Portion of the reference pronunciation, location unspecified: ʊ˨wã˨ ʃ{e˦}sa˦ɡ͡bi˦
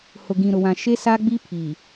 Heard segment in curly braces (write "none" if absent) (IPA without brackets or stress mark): e˦